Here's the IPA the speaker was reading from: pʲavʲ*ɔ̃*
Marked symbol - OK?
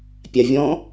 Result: yes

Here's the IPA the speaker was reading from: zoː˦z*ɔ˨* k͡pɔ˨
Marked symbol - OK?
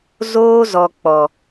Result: yes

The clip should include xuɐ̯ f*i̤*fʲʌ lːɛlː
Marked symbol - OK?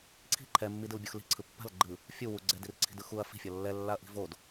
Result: yes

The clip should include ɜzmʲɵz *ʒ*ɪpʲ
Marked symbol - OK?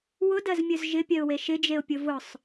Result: yes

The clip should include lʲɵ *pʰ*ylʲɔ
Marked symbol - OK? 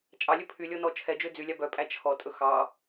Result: yes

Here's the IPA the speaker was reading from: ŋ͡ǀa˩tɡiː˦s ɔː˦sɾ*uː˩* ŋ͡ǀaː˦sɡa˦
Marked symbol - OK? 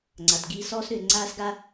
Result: no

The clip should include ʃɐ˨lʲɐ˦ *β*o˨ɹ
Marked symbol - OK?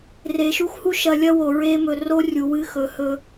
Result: no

